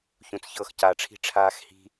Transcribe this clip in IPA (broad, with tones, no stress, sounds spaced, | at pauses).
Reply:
ç ũ˧ t͡s ç ɤ˦˨ x c a˧ ʈ͡ʂʰ i̤˦ ʈ͡ʂʰ aː˧ x h i̤˧